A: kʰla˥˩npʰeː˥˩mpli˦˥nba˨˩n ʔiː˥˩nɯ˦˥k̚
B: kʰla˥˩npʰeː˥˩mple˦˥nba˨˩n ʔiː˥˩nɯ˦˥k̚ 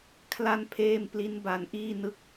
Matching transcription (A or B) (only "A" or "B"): A